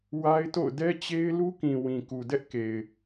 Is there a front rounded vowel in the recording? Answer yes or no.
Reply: no